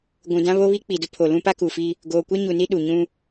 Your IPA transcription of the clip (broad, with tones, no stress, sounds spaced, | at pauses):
ɡʷ ũ˨ d ã˦ β o˦ β i˦ k͡p i˨ d ʊ˦ pʰ o˨ l ũ˦ p a˦ k u˨ f i˦ | ɡ oː˨ kʷ ɛ˦ ɲ u˨ n i˦ ɗ u˨ ɲ ũ˦